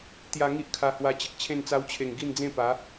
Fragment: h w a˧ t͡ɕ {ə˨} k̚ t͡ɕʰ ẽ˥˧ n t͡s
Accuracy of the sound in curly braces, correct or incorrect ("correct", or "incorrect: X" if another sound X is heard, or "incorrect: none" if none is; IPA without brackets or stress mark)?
correct